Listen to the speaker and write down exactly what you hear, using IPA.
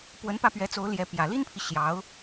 p w ə˧˥ n p ä˥˩ p ɥ ɛ˧˥ t͡s o˧˥ ʊ̯ l j ɛ˧˥ p j ä˨˩ l i˥ n pʰ i˨ ɕ j ɑ˧˥ ʊ̯

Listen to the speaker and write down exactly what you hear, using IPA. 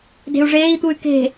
d e̤ u̯ ʐ eː i̯ t̪ u y̯ k e̤

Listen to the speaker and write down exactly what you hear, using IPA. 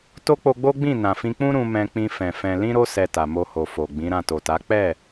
t o˦ k͡p o˧ ɡ͡b o˦ ɡ͡b ĩ˦˨ n ã˨ f ĩ˧ k͡p ũ˦ ɾ ũ˧ m ɛ̃˧ k͡p ĩ˧ f ɛ̃˨ f ɛ̃˧ l ĩ˦ ɾ o˦ s ɛ˧ t a˨ m o˧ h o˨ f o˨ ɡ͡b ĩ˨˦ ɾ ã˦˨ t o˨ t a˨˦ k͡p ɛ˦˨

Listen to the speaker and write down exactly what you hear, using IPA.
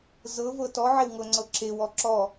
z ɤ v ɤ t ɔ ʕ e w ŋ ɤ ŋ͡ǀ ɤ ǁ e w ɔ ǁ ɔ

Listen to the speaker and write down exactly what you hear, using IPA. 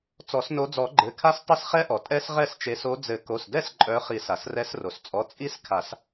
t͡s ɔ˨˩˦ s n o˨˦ d͡z ɔ˨˩˦ ɡ͡ǃ ɘ˩˧˩ kʰ a˦˥ s tˤ ɘ˦˥ s χ ɛ˦˥ ʔ ɔ˩ tʼ ɛ˦˥ s ʁ ɛ˥˩ s t͡ʃ e˨˦ s o˨˦ d͡z ɘ˨˩˦ k o˩˧˩ s d ɛ˥˩ s ǃʼ œ˨˦ χ i˨˩˦ s a˩ s r ɛ˨˦ s r o˩ s t͡sʼ ɔ˩˧˩ t͡sʼ i˦˥ s kʰ a˨˩˦ s

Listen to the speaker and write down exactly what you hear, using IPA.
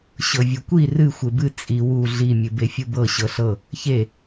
ɕ ɤ vʲ u kʷ i r ɨ xʷ e b ɨ t͡sʼ i w u ɮ i mʲ ɨ b e fʲ u b ɤ ɕ ɤ ɬ ɤ | ç e

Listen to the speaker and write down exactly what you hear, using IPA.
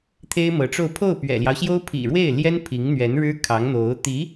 t̪ʰ e˥ ɪ̯ m ɤ˧˥ ʈ͡ʂ o˥˧ ʊ̯ pʰ o˥˩ ʊ̯ p ɥ ɛ̰˨˩ l j ɑ˦ ʊ̯ ɕ j o˥ ʊ̯ pʰ ḭ˨˩ ɻ w e˥˩ ɪ̯ l j ɛ˥ n pʰ i˧˥ ŋ n̪ ɥ ɛ˧˥ n ɻ ɻ̩˥ kʰ ɑ˧˥ ŋ n̪ o˧˥ ʊ̯ t̪ i˧˥

